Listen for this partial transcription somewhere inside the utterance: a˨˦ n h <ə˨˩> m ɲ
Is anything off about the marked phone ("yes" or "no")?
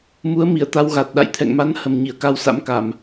no